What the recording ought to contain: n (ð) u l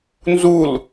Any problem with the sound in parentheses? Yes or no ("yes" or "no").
yes